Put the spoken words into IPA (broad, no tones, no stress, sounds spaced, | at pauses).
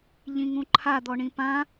ʎ ĩ ŋ ũ ǃʰ a d̪ ɔ ɳ ĩ p ã